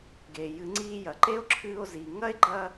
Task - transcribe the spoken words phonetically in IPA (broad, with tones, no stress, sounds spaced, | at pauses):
ɡ eː˩ j ɨ˨˩˦ ŋ͡ǀ iː˧ j ɐ˩ ǃ e˦˥ o̯ ǁʰ ɨː˧ o̯ z iː˩ ŋ ɐ˥˧ e̯ ɡ͡ǃ ɐ˧